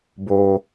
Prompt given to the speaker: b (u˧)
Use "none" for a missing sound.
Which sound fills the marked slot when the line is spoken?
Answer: o˧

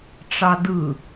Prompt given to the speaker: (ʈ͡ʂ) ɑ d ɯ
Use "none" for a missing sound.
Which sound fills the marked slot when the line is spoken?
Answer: ʈ͡ʂ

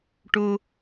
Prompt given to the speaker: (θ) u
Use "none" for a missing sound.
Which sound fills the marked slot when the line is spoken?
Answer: ʈ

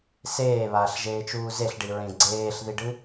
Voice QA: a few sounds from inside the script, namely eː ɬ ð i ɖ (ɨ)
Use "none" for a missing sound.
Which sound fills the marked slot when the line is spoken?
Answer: ɨ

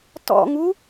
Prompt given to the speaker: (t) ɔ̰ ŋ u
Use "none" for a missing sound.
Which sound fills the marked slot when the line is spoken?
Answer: t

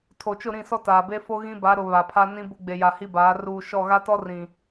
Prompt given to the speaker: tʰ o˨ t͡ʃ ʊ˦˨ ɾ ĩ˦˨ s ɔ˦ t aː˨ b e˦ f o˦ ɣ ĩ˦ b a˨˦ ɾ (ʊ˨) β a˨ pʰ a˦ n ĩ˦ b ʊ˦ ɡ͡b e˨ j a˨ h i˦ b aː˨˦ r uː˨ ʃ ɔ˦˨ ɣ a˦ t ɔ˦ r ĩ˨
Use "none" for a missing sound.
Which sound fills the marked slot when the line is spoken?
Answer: ʊ˨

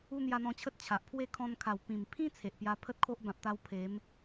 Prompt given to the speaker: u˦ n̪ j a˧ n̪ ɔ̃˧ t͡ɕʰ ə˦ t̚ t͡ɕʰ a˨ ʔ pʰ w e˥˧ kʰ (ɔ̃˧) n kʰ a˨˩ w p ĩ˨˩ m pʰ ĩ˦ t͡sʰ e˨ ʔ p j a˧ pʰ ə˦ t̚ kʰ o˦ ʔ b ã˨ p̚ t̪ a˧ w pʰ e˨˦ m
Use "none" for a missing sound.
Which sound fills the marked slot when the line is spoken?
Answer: ɔ̃˧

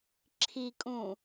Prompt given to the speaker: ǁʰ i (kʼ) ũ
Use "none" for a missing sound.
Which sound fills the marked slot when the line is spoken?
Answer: kʼ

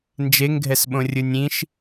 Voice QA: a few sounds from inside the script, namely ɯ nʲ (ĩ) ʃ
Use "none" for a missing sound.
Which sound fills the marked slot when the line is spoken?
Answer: ĩ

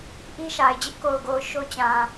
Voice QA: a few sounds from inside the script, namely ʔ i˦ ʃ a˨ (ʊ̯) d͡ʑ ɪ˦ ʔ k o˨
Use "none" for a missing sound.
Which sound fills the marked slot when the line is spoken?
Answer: ɪ̯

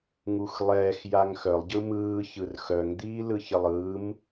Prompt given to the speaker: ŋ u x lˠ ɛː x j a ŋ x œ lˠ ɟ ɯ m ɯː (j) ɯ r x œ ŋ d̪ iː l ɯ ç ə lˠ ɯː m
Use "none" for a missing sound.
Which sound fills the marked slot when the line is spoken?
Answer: ç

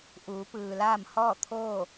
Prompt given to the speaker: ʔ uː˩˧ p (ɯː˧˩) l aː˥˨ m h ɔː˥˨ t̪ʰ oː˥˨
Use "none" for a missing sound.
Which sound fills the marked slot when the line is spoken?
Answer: ɯː˩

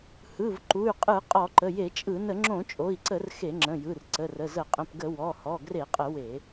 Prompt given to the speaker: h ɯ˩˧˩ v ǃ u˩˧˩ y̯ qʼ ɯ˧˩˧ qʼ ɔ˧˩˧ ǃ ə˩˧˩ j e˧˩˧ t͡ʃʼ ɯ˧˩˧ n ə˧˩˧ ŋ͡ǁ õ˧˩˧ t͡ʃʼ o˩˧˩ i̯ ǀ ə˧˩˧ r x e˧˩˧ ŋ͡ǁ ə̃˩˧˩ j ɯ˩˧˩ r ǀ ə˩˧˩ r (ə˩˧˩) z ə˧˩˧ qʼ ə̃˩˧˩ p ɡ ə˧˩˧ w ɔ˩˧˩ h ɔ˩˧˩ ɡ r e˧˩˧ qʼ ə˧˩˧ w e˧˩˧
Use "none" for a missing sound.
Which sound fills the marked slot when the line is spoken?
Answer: ə˩˧˩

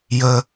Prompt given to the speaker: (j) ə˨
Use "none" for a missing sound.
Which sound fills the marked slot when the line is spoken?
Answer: j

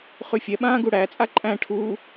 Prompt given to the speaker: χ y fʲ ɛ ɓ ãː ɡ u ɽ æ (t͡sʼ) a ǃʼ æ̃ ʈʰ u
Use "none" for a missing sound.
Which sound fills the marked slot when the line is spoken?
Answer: t͡sʼ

